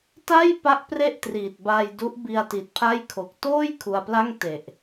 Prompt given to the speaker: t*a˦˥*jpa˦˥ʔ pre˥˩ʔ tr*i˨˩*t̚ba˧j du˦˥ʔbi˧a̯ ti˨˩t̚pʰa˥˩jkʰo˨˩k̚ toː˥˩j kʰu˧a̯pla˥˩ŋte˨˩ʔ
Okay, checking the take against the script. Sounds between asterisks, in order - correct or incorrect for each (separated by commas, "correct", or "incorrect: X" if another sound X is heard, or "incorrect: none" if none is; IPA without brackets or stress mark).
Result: incorrect: a˥˩, correct